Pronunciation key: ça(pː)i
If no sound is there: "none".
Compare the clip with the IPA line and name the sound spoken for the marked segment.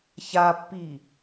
pː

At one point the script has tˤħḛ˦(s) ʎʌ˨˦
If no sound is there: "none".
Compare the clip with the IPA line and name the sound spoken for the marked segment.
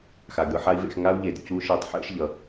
ʃ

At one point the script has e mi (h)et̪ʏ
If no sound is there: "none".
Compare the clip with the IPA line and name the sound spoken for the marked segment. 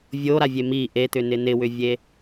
ʔ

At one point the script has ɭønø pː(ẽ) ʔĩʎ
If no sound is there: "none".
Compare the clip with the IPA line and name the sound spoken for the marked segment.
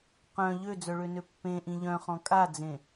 ẽ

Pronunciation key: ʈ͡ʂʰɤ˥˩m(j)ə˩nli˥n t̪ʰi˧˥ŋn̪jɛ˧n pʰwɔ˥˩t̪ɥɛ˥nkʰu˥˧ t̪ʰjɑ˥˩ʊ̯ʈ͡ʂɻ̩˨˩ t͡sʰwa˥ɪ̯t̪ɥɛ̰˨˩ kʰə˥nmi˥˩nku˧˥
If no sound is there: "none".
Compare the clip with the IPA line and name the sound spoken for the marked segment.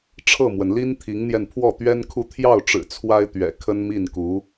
w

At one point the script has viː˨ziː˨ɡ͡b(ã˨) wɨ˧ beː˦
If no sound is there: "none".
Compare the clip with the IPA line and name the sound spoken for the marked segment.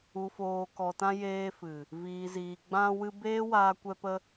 ã˧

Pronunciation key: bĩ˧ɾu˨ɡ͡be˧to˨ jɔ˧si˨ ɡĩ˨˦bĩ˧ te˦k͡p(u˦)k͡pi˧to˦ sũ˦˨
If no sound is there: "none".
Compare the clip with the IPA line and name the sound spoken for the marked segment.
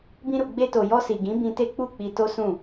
u˦˨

